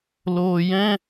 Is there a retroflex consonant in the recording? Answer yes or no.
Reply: no